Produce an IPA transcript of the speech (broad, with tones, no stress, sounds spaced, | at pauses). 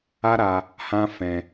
a˦ ɾ a˧ | h ã˦ f ɛ̃˧